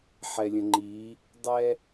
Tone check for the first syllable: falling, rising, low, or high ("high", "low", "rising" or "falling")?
low